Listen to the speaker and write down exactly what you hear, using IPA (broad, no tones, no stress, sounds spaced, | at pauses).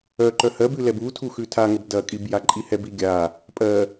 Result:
œ ǃ œ h ɜ b ʉ l ɛ b u tʰ u x ʉ tʰ a ŋ ə b d ɐ kʼ i b j a ǃʼ i h ɛ b i ɡʲ a | pʼ ɜ